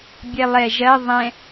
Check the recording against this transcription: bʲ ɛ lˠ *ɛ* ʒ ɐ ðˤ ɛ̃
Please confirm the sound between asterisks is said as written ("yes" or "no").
yes